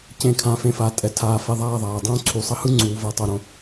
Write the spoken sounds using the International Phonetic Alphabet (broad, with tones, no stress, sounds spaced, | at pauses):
c ẽ˧ kʰ ã˨˦ f ẽ˧ f a˨˦ tʼ ɛ˧ tʰ aː˧ f ɛ˧ ðˤ aː˦˨ ðˤ aː˨ dˤ õː˦ ǀʰ u˨ sˤ ʌ˦ h ɯ˦ ŋ͡ǀ uː˨ v ʌ˨ tˤ o˨ ɾ õ˧